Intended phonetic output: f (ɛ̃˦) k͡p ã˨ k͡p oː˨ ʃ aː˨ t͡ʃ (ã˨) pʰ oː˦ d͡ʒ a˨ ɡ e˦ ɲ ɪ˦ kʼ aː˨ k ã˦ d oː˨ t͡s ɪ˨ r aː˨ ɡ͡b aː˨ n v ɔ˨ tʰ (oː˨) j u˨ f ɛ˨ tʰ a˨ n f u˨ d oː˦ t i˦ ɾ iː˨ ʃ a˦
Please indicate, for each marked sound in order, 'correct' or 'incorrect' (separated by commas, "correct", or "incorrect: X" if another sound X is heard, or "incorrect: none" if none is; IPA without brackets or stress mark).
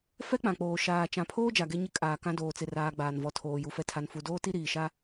incorrect: ɛ˦, correct, correct